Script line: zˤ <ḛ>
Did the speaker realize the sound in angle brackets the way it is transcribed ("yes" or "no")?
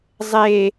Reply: no